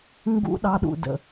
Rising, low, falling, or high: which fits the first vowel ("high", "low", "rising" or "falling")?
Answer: high